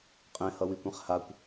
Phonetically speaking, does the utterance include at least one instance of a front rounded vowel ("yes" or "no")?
no